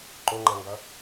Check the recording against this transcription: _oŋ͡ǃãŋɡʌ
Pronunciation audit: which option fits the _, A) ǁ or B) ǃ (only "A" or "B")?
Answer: B